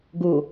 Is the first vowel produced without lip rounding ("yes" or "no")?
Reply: no